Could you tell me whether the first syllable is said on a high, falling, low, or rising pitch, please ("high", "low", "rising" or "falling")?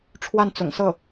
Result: falling